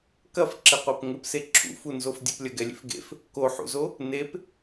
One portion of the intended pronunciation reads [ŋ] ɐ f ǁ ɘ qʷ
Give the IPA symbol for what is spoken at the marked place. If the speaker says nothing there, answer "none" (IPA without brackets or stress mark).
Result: k